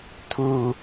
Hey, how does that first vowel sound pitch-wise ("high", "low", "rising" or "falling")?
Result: low